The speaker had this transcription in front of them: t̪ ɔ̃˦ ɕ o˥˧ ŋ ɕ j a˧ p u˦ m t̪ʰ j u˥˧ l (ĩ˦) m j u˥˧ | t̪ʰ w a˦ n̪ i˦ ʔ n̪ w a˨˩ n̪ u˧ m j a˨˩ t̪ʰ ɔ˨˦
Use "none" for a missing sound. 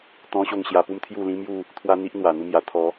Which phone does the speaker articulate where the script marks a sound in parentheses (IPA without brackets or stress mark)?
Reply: ĩ˦